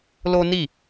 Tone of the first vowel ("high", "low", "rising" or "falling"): high